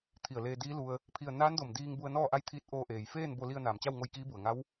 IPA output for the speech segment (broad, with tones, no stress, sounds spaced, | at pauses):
t̪ʰ i˧˩ ə̯ l eː˧ d iː˧˥ l u˧ ə̯ | pʰ i˥˨ ə̯ n aː˧˥ n d o˧˩ m d iː˧ ŋ b u˧ ə̯ n ɔː˥˨ ʔ a˥˨ j t̪ʰ iː˧˥ t̚ ʔ oː˧ ʔ eː˩ j f eː˥˨ n b o˧ l i˧ ə̯ n aː˩ m t͡ɕ a˥˨ w ŋ o˧ j k iː˧˥ b u˩ ə̯ ŋ a˧˥ w